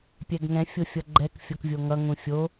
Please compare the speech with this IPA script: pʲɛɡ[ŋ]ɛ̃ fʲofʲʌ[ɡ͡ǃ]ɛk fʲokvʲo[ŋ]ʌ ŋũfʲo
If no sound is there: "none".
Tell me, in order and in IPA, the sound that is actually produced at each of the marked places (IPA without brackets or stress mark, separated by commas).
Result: ŋ, ɡ͡ǃ, ŋ